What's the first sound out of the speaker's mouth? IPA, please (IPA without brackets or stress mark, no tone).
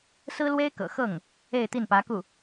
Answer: s